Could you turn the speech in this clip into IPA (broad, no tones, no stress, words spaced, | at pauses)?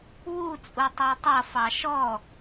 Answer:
wu t͡sʼutˤætˤʌ fɑʃɔ